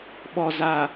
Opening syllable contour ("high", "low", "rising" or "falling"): low